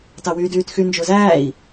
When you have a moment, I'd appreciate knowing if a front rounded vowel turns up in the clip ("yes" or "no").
yes